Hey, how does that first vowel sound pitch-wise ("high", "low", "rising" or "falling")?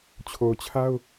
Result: low